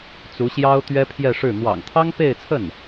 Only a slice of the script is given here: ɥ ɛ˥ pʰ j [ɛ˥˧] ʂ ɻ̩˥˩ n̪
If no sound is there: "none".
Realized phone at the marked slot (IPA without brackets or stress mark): ɛ˥˧